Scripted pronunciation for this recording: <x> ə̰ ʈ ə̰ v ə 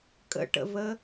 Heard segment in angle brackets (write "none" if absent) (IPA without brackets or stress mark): kʼ